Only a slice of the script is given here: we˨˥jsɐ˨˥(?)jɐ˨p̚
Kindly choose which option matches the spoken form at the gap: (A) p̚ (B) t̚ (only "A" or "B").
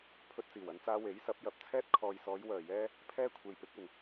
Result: A